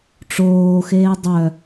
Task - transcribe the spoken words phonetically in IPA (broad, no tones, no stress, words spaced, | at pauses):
ʈ͡ʂoːxeː dˤœ